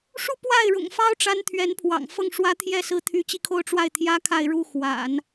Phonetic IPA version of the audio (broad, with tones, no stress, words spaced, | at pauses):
ʂu˥˧ pwa˥˩ɪ̯ɻʊ̰˨˩ŋfɑ˥ʊ̯ ʈ͡ʂa˥nt̪ʰɥɛ˧˥npʰwɑ̰˨˩ŋ fɤ˥˩ŋʂwä˥t̪ʰjɛ˥˩ sɹ̩˥t̪ʰy˧˥t͡ɕi˥˧kʰo˥˧ʊ̯ ʈ͡ʂwa˥˩ɪ̯t̪ʰjä˥ kʰa˥˧ɪ̯ɻu˥˩ xwa̰˨˩˦n